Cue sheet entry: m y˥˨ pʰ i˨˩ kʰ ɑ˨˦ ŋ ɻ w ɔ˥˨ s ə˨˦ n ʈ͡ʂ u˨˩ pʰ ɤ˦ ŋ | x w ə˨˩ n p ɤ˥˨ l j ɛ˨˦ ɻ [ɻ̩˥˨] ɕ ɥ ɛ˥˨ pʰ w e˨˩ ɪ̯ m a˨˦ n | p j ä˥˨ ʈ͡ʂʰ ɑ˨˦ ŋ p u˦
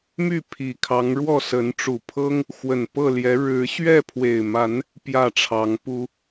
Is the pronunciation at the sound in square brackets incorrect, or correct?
incorrect